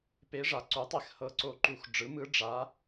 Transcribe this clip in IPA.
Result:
p e˧˥ ʐ a˩˥ ǀ u˩˥ tˤ e˧˩˧ x h ɤ˧˩ ǀ o˧˩ ǃ u˧˩˧ x ɖ͡ʐ ɯ˩˥ m ɯ˧˥ ɖ͡ʐ a˧˥

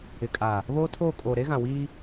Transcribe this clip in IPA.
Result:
ɪ˨ kʼ a˨ | β oː˦ tʰ oː˦˨ kʼ oː˨ ɾ e˦ ɣ ã˨ w iː˦

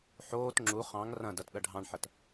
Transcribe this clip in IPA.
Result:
ħ oː t ŋ͡ǁ u χ ɑ̃ ŋ r ɐ̃ d ɐ t ɗ ɐ ɖʱ ɑ̃ ɳ ħ ɐ t

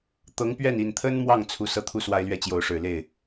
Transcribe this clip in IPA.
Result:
t̪ ɤ˧˥ ŋ p ɥ ɛ˥˩ n i˨˩ n t̪ʰ ə˥ n m w ɑ˥˩ ŋ t͡sʰ u˧˥ s ɤ˥ t̪ʰ u˥ s w a˥ ɪ̯ l ɥ ɛ˥˩ t͡ɕ j o˧˥ ʊ̯ ʂ ɻ̩˨˩ l e˥˩ ɪ̯

